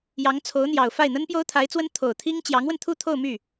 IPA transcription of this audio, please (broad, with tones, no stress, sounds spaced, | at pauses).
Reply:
j ɑ˧˥ ŋ t͡sʰ o˧˥ ʊ̯ n̪ j ɑ˨˩ ʊ̯ f a˥˩ ɪ̯ n̪ ə˥ n p j o˥ ʊ̯ t̪ʰ a˧˥ ɪ̯ t͡s w ə˥ n t̪ʰ o˨˩ ʊ̯ t̪ʰ i˥ ŋ t͡ɕ j ɑ˧˥ ŋ w ə˧ n t̪ʰ u˥˧ t̪ʰ o˥˧ ʊ̯ m y˥˩